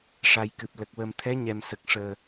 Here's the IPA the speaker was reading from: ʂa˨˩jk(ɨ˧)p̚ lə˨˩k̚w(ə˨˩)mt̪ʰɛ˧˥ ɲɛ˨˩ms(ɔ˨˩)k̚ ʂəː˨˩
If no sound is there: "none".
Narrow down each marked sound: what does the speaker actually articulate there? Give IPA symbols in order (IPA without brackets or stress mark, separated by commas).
ɨ˨˩, ə˨˩, ə˨˩